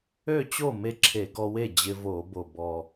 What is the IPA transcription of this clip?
ø˥˩ t͡ɕ o˥˩ m e˧ ǁʰ e˧˩˧ ɡ ɔ˧ w e˥˩ d͡ʑ ɪ˧ v o˧˩˧ b o˨˩ b ɔ˨˩

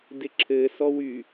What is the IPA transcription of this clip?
d ɪ ǁʰ ɘ s ɔ w y

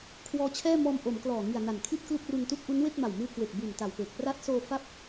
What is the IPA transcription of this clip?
kʰ w ɔː˦˥ t͡ɕʰ ɛː˥˩ m ɔː˧ m ʔ o˩˦ m k l ɔː˨˩ ŋ i˨˩ a̯ n a˨˩ n kʰ i˥˩ t̚ k l u˥˩ k̚ r u˧ n t u˥˩ k̚ ʔ u˦˥ n w e˥˩ k̚ m a˨˩ w m ɯː˧ k w e˨˩ k̚ b u˨˩ n t a˨˩ w p eː˨˩ k̚ p r a˦˥ t̚ s oː˧ f a˥˩ p̚

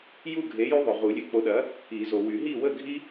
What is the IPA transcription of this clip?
j u˥˨ ɡʱ e˨˥ j y˦ ðˤ ø˨ ʁ u˨˩˦ lʲ ø˨˥ k͡p o˨˥ ɗ ɐ˨˥ | i˨˩˦ z o˨ w y˨˩˦ ɦ i˥˨ w ə˥˨ ɡʱ i˦

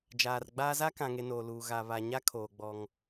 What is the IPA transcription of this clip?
d͡ʒ aː˨ r ɡ͡b aː˦ z a˦ k ã˨ ŋ e˨ n oː˨ l uː˨ ɣ a˨ β a˨ ɲ a˦ kʰ oː˨ ɡ͡b ɔ˦ ŋ

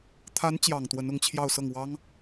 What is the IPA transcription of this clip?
t̪ʰ a˧˥ n t͡ɕ j ɑ˨˩ ŋ t̪ w ə˧˥ n ʊ˧˥ ŋ t͡ɕʰ j ɑ˥˧ ʊ̯ s ɤ˥˩ ŋ w ɑ˥ ŋ

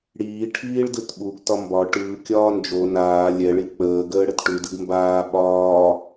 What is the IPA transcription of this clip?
ɽ iː ʈʰ iː ɭ d ɯ t ɓ u ɡ t ɒ m b ɒ ʈ ɯː kʲ ɒː n d͡ʒ o n aː lʲ ɛ ɭ i k͡p əː ɡ əː ɽ ə t ʈ ʉ d ɯ ɡ m b aː ɓ ɒː

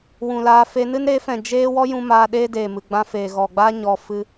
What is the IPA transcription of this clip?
w ũ˨ l aː˧ f e˧ n ɨ˦ n ɾ e˨˦ f ɛ̃˨ d͡ʒ eː˦ w ɔ˦ j ũ˧ m aː˧ ɗ eː˦ d eː˨ m ɨ˨ ɡ͡b ã˧ f eː˨ ɣ ɔ˨ ɡ͡b aː˦ ɲ ɔ˧ f ɨ˧

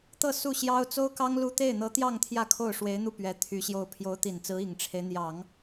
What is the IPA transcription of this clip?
t̪ ɤ˥˧ s u˥˩ ɕ j ɑ˥ ʊ̯ t͡s o˥ ʊ̯ k ɑ˥ ŋ l u˥˧ t̪ e˥˩ ɪ̯ n̪ ɤ˧˥ t̪ j ɑ˥˧ ŋ t̪ʰ j ä˥˧ kʰ o˥˩ ʊ̯ ʂ w e˧˥ ɪ̯ n̪ u˥˩ p ɥ ɛ˧˥ t̪ʰ y˧˥ ɕ j o˥˩ ʊ̯ pʰ j o˧˥ ʊ̯ t̪ i˨˩ n t͡s ɹ̩˧˥ i˨˩ ŋ ʈ͡ʂʰ e˦ ɪ̯ n̪ j ɑ˨˩˦ ŋ

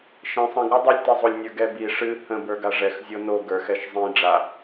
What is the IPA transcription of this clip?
ʃ ẽ sˤ ə̃ ɡ ɾ ɨ dˤ o lʲ t i zˤ o lʲ nʲ ə˞ ɡ ɛ b i ʂ ɨ h ə̃ b ə˞ ɡ a ʐ ɛ x zʲ o n o ɡ ə˞ x ɛ ʃ zˤ ĩ ɖ͡ʐ a

